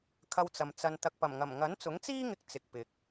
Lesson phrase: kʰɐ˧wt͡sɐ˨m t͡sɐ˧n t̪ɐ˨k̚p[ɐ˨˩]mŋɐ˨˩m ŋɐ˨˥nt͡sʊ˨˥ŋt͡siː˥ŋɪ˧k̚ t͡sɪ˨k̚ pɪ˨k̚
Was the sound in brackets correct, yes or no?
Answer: yes